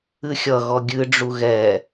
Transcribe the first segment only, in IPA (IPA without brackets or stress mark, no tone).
ɨ